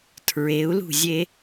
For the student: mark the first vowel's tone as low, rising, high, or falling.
rising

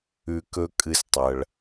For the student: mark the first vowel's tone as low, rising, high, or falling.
low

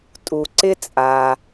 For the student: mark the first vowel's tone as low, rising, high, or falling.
low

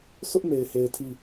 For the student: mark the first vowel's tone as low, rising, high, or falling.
high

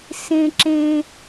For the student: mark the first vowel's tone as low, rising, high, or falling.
high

